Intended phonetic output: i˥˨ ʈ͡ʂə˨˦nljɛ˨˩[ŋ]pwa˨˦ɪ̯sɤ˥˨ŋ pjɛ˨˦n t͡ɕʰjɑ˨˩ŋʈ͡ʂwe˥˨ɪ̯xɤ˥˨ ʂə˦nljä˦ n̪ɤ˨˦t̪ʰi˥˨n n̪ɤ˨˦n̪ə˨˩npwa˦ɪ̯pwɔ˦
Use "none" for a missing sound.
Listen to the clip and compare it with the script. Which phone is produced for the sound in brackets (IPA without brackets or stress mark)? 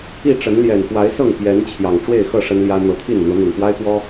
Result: n